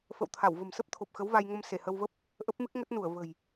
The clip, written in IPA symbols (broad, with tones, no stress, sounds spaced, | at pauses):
f ə̰˧˨ w t̪ʰ a˧˩ w v ə̤˨˩ m s ə˦˥ p̚ t̪ʰ o˨˩ p̚ x ə˨˦ w v a˧ j ŋ ə˧ m s e˧˩ h ə˧ w v ə˦˥ p̚ | ʔ ə˦˥ p̚ m ɨ˦˥ k̚ ŋ ə˦˥ t̚ n u˧˩ ə̯ v ə̤˨˩ j